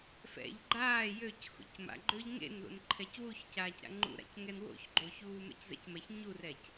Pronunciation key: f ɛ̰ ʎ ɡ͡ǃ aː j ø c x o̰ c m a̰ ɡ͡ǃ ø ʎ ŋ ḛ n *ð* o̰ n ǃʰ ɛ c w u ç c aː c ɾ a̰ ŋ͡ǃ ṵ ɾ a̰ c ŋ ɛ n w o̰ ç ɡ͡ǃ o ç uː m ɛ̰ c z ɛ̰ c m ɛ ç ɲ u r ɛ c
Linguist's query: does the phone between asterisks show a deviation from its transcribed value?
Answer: no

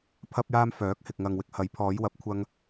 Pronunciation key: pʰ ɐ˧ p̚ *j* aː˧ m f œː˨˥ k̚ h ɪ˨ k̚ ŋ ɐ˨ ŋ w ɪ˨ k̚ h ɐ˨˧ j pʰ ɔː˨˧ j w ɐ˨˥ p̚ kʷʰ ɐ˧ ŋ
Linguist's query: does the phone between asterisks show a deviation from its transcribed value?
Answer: no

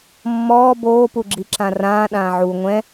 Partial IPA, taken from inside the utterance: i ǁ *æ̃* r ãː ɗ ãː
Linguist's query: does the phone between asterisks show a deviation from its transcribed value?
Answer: yes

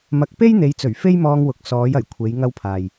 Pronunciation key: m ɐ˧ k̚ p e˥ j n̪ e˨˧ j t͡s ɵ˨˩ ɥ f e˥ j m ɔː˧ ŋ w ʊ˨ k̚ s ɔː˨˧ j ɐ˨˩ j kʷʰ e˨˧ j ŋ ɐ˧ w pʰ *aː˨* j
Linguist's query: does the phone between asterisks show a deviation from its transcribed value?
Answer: no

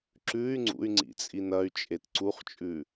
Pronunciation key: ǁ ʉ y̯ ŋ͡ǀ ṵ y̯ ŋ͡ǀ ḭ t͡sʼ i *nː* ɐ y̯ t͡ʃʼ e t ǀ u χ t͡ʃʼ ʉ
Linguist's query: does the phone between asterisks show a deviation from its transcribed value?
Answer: yes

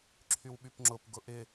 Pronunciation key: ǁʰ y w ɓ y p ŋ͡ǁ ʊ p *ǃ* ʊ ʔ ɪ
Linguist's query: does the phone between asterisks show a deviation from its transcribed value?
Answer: yes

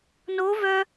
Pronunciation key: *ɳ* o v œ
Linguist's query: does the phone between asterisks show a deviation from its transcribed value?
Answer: yes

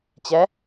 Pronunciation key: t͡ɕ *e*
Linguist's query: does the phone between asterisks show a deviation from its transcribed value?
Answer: yes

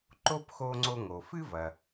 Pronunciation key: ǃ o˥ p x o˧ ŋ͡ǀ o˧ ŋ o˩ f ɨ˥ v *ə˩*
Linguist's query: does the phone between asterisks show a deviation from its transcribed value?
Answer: yes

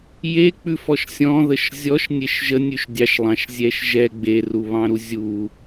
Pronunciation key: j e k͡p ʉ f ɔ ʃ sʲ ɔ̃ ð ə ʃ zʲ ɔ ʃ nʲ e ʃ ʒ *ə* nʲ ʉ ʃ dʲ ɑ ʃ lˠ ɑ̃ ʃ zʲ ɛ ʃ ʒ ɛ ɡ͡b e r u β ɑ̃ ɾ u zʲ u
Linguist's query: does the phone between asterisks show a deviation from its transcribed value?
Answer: no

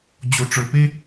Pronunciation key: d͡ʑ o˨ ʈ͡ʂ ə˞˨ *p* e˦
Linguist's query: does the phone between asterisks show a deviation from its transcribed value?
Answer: no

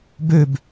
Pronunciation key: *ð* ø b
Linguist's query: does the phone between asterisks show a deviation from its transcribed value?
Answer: yes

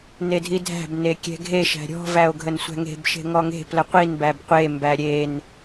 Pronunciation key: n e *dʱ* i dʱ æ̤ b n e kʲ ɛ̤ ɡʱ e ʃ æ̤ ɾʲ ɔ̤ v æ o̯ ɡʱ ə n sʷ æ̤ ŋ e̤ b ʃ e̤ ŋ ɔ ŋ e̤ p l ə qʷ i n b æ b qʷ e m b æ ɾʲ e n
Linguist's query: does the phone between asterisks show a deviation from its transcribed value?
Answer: no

